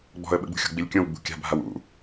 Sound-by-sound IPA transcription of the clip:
ɡ͡bɔ̤ə̯ɓəɡ͡bṳxʲo̤ ɡ͡bilʲkʲõw ɡ͡bṳkʲa̤bʱaw ṵ

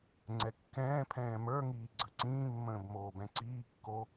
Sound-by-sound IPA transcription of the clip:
ŋ͡ǀɛkːɛ̃ː pʰɛ̃ːmə˞ ŋiːɡ͡ǀəǀĩːmːə̃ːb moːbɛ̃ǀiːkːo

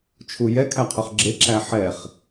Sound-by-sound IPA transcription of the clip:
t͡ʃʰujɛ kʰæqʰøχɡ͡ǁe ǁæħɛχ

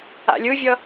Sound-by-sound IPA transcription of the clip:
a̰lʲɯvʲʌ

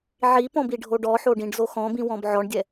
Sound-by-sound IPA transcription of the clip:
ʕipɔ̃ biɖʱoɖɔħo ɖĩɖzoxɔ̃bĩ wɔ̃bʕɔɳdʲɛ

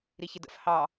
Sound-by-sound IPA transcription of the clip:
ɾiçɪdə̰f hɑ

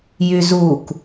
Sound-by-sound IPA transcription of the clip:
jyzuk

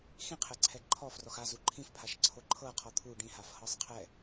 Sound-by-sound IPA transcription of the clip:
xĩqʰɛǀʰɛ ǃʰɔ frɔxa zuǃʰĩfpʰaʃ ǀʰoǃʰɤ qʰɔt̪ʰu ɖĩhaf hɤsˤqʰɛ

